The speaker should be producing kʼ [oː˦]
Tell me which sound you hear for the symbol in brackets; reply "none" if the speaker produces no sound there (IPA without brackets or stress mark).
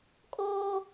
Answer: oː˦